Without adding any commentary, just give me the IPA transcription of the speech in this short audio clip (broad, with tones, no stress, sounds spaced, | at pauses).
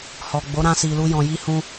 h ɔ˨ ɡ͡b o˨˦ ɾ ã˧ s i˨ l u˧ j ɔ̃˨ j i˧ h ũ˧